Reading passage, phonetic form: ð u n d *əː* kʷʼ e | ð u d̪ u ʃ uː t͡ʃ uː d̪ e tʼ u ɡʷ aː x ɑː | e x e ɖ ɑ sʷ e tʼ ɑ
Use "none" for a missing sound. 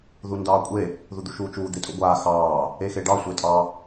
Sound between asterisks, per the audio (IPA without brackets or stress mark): ɑː